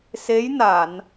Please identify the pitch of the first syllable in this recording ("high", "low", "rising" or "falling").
rising